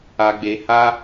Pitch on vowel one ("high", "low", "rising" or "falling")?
low